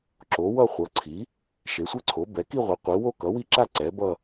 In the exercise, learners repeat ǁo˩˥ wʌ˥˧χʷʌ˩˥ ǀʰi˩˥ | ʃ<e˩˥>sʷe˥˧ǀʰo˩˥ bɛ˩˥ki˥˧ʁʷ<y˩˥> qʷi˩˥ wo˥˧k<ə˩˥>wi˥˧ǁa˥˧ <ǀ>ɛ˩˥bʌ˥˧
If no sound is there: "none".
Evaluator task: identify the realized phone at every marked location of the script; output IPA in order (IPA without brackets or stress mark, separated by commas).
e˩˥, i˩˥, ʌ˩˥, ǀ